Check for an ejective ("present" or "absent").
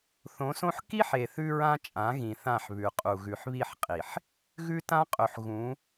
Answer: present